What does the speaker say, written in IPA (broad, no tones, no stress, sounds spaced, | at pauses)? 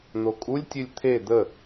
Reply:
n̪ o kʼ u lʲ tʲ ɨ lʲ t̪ʰ e d̪ ə